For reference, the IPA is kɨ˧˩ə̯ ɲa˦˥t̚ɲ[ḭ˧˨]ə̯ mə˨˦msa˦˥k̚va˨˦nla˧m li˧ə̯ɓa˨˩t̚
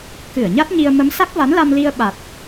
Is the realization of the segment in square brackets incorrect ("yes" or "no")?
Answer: yes